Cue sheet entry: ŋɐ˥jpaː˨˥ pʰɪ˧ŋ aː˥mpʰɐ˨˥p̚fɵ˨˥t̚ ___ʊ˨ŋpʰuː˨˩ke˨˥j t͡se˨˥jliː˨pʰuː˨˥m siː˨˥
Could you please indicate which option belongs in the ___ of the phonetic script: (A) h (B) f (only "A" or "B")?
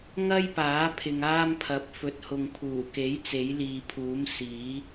A